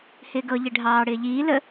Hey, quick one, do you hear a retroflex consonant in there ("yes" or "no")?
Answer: yes